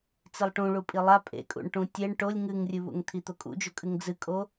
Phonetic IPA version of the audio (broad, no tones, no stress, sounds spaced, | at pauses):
t͡s i lˠ ʈ ũ ɭ u pʼ i lˠ a pʼ ḛ kʼ ṵ ɳ ʈ ũ tʲ e ɳ ʈ o lʲ ŋ ɨ ŋ rʲ ɨ β ṵ ŋ t̪ʰ i t̪ o kʼ ṵ d͡ʒ o kʼ ɨ ŋ d͡z ɨ kʼ o